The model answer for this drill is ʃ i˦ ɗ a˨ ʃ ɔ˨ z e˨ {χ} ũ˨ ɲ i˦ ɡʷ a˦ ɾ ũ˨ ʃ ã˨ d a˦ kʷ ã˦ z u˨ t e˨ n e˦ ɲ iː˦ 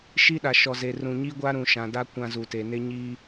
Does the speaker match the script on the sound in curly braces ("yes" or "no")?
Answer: no